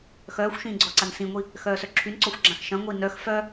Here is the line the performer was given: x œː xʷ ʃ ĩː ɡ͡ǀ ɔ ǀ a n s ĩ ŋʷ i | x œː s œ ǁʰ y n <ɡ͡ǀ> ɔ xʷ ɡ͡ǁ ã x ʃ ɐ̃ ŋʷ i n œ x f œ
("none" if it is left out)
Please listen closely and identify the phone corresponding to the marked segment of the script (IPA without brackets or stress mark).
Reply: ǀ